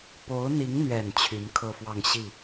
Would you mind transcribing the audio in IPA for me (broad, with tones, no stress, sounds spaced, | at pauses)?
p o˧˥ ʊ̯ n̪ i˧˥ ŋ n̪ ɥ ɛ˨˩ n t͡ɕʰ y˧˥ n kʰ ɤ˥˧ f w ɑ˥˧ ŋ ɕ i˥˩